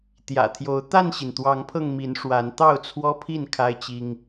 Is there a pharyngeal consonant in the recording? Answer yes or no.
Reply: no